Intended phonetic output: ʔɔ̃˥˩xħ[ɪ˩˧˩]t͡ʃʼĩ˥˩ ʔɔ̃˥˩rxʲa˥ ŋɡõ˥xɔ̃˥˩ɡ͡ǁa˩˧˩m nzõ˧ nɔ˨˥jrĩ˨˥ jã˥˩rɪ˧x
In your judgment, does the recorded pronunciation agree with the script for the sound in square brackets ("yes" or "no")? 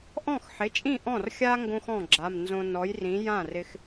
yes